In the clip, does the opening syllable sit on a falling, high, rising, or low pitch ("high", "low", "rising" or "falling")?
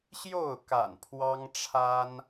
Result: falling